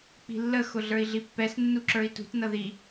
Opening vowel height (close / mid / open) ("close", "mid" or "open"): close